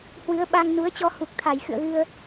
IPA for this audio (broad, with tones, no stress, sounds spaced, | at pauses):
h w ɨ˨˦ ə̯ ɓ a˧ ŋ n u˨˦ ə̯ t͡ɕ ɔ˧ h u˨˩ k̚ t̪ʰ a˧˩ j x ɨ̰˧˨ ə̯ ɣ ɨ˧ ə̯